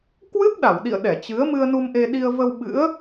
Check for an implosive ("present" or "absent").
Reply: present